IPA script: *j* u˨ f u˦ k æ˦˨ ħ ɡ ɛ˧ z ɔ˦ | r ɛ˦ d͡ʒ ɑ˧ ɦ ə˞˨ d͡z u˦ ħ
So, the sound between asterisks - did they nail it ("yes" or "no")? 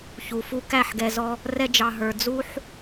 no